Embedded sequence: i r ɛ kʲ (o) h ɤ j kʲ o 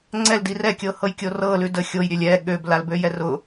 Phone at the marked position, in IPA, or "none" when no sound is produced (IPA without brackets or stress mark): ɤ